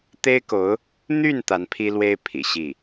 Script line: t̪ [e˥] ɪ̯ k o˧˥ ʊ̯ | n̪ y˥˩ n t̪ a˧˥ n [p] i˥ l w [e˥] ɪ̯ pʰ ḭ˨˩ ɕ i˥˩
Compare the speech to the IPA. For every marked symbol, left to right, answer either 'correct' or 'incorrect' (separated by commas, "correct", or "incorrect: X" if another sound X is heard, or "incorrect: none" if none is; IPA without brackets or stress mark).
correct, incorrect: pʰ, correct